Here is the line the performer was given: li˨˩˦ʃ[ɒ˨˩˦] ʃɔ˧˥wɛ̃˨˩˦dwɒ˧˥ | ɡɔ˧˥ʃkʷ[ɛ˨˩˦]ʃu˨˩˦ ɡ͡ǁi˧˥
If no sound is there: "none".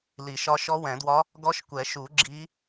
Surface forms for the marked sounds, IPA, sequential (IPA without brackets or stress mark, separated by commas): ɒ˧˥, ɛ˨˩˦